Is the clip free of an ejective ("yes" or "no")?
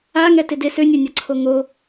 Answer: yes